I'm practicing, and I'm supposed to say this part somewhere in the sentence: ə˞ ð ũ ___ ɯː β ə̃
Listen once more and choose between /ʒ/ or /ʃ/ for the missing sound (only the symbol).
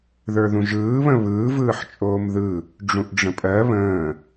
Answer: ʒ